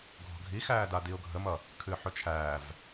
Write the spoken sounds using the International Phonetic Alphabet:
ɡʱ ɔ̤ ɡʱ i x æː d a d i ʊ̯ ɡʱ ə m ʌ | kʰ ɨː ħ ɵ t͡ʃʰ æː v

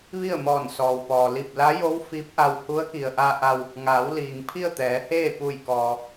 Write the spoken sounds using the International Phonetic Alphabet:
ʋ i˥˨ ə̯ m ɔː˧˩ n s ɔː˩ w p ɔː˩ l i˧˩ p̚ l a˧˥ j o˧˥ w f i˧˥ p̚ ʔ a˧ w h u˧˥ ə̯ k i˩ ə̯ ʔ a˧ ʔ a˧ w | ŋ aː˩˧ w l iː˩ ŋ pʰ i˥˨ ə̯ t̪ ɛː˩˧ h eː˥˨ p u˧˩ j k ɔː˩

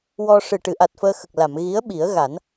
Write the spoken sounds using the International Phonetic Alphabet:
w ɔ˧ ʂ ɨ˨˩ ʈ ɨ˨˩˨ ʔ a˨˩ t̚ f əː˧ x ə˨˩ k̚ l a˨˩˨ m ɣ i˧˥ ə̯ ɓ i˨˩˦ ə̯ ɣ a˨˩˦ n

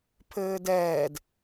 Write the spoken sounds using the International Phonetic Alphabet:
pʰ ɘː d ɛː d

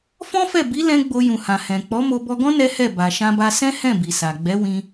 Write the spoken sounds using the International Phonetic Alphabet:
f ɔ̃˦ f ɛ˦˨ b i˨˦ l ɛ̃˧ ɡ͡b o˧ j ũ˨ h ã˨ h ɛ̃˨ k͡p ɔ˨˦ m o˧ b ɔ˧ ɡ ɔ̃˦ n ɛ˦ h ɛ˦˨ b a˨ ʃ ã˧ b a˧ s ɛ̃˦ h ɛ̃˦˨ b i˨ s a˨ ɡ͡b ɛ˨˦ w ĩ˧

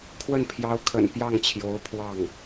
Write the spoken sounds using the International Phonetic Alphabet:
kʰ w ə˥˩ n pʰ j ɑ˧˥ ʊ̯ kʰ ə̰˨˩ n p j ɑ˥˩ ŋ t͡ɕʰ j o˧˥ ʊ̯ pʰ w ɑ˥˩ ŋ

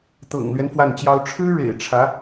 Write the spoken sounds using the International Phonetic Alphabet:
t̪ ɤ̰˨˩ ŋ l ɥ ɛ˦ n f w a˥˩ n t͡ɕ j ɑ˥ ʊ̯ ʈ͡ʂʰ ɻ̩˥ ɻ ḛ˨˩ ɪ̯ ʈ͡ʂʰ ä˧˥

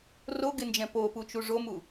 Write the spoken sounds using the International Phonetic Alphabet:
r o ɡ ɪ n d͡ʒ ɛ̃ p o p u t͡ʃ u ʐ o m u

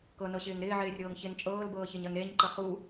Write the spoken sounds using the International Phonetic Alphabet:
k ɤ n ɤ ɕ ɪː ŋ ɾ ɪː ʕ ɪː rʲ ɤː ŋ ç ɪ n t͡ʃʼ ɤː l b ɤː ç e ɲ ɜ ŋ ɾ e ɲ ǃ ə χ u

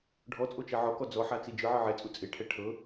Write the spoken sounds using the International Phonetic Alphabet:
ɖʱ ɔ t͡sʼ o t͡ʃ ɛ ʕ ɔ k ɔ d͡z ɔ ħ a t͡s i d͡ʒ ɯ ʕ ɯ ʕ ɛ t͡sʼ u t͡sʼ e ʈʰ ɛ ʈʰ ɤ

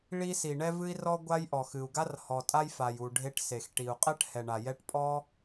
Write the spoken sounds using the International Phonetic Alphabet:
ɭ i˥ s i˩ ɳ ɛ˥ v ɨ˥ i̯ r ɔ˥ ɡʷ a˥ j ʔ ɔ˩ x ɨ˩ u̯ ɡ a˥ r h ɔ˩ tʼ a˥ j f a˩ j u˩ ɖʱ e˥ ʈ s e˩ x ʈ i˩ u̯ qʼ ɛ˥ ʈ h ɛ˩ ɳ a˩ j ɛ˥ ʈ pʼ ɔ˥

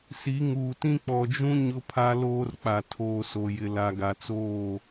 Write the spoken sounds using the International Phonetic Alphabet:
s i˨˦ ŋ uː˨ t ĩ˦ k͡p ɔ˨ d͡ʒ ũ˦ ɲ ʊ˦ pʰ a˦ l oː˦ r k͡p a˨ tʰ oː˨ s o˨ j ɪ˨ l a˨ ɡ a˨ t͡s oː˦˨

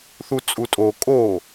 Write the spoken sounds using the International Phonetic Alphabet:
θ u t͡sʼ u tʼ o kʼ o

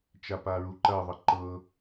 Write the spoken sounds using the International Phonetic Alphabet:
t͡ʃ a p a ɹ u ǃ ɐ ðˤ ɤ ǃ ɤ

